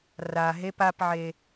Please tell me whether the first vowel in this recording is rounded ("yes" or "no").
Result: no